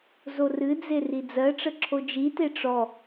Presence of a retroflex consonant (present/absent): present